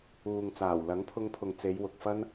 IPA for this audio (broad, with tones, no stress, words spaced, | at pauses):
uː˨ŋ t͡saː˨˩wlɐ˨˥ŋpʰʊ˧ŋpʰʊ˨ŋ t͡se˨˧j wʊ˨k̚fɐ˥n